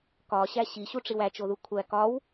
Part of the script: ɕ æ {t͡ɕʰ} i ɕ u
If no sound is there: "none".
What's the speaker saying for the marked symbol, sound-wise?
ɕ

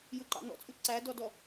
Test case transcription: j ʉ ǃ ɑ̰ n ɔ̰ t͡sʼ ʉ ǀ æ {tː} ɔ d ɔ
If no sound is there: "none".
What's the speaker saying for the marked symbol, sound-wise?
d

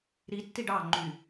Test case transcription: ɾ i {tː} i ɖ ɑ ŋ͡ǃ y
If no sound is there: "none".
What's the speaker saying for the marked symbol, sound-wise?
tː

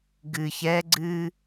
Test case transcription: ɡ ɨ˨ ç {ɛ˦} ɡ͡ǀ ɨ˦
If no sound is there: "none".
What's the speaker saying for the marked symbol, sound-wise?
ɛ˦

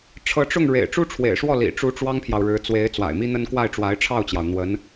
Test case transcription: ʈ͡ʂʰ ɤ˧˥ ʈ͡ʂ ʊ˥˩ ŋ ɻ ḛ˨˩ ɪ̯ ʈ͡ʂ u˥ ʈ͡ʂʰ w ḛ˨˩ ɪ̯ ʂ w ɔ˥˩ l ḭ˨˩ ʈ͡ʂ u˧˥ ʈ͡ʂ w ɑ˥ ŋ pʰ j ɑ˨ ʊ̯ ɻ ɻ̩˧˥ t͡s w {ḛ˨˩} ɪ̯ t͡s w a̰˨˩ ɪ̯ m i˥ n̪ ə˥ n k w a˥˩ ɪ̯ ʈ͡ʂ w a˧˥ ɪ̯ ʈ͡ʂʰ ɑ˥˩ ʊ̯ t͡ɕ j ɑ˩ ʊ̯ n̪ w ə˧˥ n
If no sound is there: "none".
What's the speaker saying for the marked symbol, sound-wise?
e˧˥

